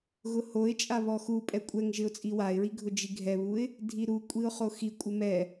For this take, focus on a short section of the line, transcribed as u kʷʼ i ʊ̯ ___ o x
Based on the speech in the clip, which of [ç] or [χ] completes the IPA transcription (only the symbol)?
χ